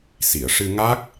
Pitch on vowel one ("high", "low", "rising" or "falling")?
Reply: low